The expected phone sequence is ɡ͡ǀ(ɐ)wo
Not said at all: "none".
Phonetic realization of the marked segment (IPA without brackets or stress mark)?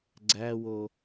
æ